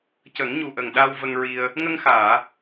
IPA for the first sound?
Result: c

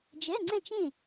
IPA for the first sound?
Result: d͡ʒ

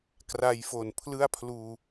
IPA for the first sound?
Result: k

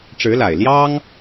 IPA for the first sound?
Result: ʈ͡ʂ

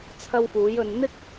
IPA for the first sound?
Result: t͡sʰ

